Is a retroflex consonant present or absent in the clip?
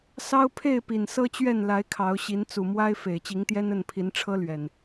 present